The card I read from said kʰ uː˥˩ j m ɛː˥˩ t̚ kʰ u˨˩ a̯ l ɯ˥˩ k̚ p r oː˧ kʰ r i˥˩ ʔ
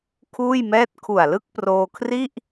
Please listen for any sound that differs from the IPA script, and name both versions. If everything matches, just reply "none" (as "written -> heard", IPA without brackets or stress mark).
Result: none